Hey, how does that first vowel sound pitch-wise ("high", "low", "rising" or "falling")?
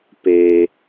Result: low